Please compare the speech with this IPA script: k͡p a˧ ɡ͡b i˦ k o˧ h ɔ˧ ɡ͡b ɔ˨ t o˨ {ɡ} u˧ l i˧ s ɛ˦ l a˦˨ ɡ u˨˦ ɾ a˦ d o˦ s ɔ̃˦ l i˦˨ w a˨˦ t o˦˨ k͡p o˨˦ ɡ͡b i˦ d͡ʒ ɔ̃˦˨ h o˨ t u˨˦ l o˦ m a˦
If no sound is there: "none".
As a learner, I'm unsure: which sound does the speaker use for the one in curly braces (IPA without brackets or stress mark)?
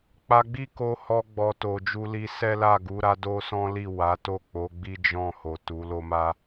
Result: d͡ʒ